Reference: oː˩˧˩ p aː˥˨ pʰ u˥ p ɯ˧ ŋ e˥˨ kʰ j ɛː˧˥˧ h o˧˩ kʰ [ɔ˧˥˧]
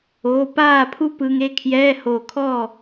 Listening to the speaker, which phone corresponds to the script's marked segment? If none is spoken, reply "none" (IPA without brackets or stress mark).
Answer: ɔ˥˨